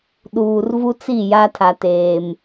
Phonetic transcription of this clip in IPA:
ɗ uː˨ r v u˦ t͡s i˦˨ j a˦ tʰ a˨ t eː˨ m

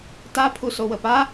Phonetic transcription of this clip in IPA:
t a pʰ u s o w ə p a

